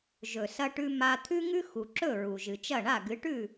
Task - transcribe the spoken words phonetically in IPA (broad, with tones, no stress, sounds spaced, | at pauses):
ʒ ɵ˩ s ɐ˧ ʈ ʉ˧ m a˧ t̪ʰ ʉ˥ ŋ ʉ˥ x u˩ ǁ ɵ˥˩ ɹ u˩ ʒ ɨ˩ t͡ʃ ɐ˥˩ ɳ a˥˩ ɡ ɨ˩˥ ʈ ʉ˥˩